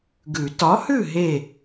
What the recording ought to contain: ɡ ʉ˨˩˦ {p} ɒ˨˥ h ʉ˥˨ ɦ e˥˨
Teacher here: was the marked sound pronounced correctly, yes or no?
no